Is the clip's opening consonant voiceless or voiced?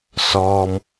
voiceless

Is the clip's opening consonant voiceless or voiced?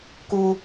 voiceless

